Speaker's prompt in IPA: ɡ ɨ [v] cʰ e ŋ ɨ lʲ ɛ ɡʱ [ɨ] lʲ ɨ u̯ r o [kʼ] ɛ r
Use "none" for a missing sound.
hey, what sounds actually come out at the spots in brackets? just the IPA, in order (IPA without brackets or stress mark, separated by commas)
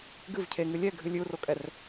v, ɨ, kʼ